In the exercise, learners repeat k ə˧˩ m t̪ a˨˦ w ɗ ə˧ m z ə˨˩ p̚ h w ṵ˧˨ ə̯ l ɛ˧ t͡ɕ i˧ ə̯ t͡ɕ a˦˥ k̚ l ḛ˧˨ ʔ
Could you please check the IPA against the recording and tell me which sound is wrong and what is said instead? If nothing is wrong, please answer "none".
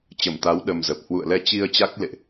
k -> t͡ɕ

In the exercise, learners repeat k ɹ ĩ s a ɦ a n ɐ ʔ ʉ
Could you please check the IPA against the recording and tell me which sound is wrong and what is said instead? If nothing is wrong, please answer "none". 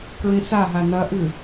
none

